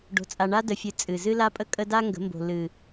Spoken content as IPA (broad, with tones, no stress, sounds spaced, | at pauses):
ɖ o̤˨ t͡sʼ a˨ ɳ a˦ d ə˨ fʲ ɨ˨ t͡sʼ ɨ˨ z ɨ˦ l a˦ pʼ ə˦ kʼ ə˦ d a˦ ŋ ɡ ə̤˨˦ m b o̤˨ l ɨ˨